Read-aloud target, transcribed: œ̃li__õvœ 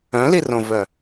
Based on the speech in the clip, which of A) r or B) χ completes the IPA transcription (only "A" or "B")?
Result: A